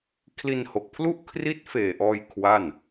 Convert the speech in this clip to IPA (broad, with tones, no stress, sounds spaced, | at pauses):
kʰ l i˧ n h o˨˩ k̚ pʰ l u˥˩ ʔ kʰ r i˦˥ t̚ f eː˨˩ ʔ ɔː˧ j kʰ w a˥˩ n